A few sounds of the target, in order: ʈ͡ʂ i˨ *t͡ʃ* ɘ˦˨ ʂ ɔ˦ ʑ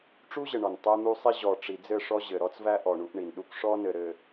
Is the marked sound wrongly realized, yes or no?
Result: yes